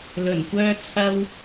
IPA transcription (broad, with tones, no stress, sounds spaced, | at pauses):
l ɵ˨˩ n kʷ œː˥ t͡sʰ ɐ˥ w